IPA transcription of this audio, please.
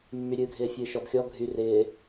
mːyɾʲɨːɡʱɪː fʲɨːʃɔb xʲɔ ɡʱy rɪː

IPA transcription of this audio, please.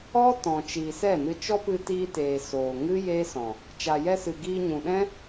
ɔ˦ tɔ̃˨t͡ʃiː˨sɛ˦˨nɨ˧ t͡ʃɔ˦pɨ˧tiː˧teː˨ soː˨ŋɨ˦ jeː˦sɔ̃˨ | t͡ʃa˨jɛ˧sɨ˨ ɡiː˧ɲũ˨ ɗɛ̃˦

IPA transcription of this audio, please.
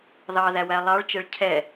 ðɑðæwæ lˠɑɭt͡ʃɛɭ cʰɛ

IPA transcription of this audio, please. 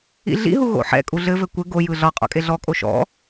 ḭɮḭɦu ɣo̰ħɛ̰ kʼuɮɘvɘ kʷɘ ɡo jɯɮɒ qʼɔ̰kʼeɮɔ kʼoʃɔ̰

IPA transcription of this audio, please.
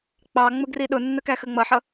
k͡pɑ ŋ͡mʊɡriɗʊnːə kæxəŋ͡mʌħʌ

